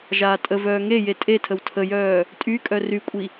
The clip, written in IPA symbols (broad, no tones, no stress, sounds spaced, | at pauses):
ʒ aː tʼ ə v œː ŋ e j e tʼ e tʰ ə w tʰ ə j œː | tʼ y kʼ œ r y kʷʼ i